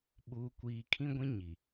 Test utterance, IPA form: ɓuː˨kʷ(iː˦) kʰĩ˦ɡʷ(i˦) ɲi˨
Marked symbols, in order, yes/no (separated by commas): no, no